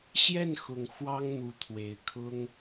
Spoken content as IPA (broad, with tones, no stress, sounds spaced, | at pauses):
ɕ j ɛ˥˨ n x ʊ˨˩ ŋ x w ɑ˦ ŋ n̪ u˨˦ t̪ʰ w e˨˩ ɪ̯ kʰ ʊ˦ ŋ